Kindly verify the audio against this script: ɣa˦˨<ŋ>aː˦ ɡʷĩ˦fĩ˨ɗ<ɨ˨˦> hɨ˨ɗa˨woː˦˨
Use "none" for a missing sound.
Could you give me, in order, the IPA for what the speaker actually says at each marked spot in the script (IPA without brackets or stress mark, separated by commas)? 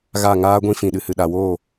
ŋ, ɨ˨